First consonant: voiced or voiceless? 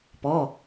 voiceless